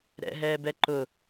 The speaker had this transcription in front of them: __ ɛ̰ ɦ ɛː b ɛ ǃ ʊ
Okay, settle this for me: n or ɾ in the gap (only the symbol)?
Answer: ɾ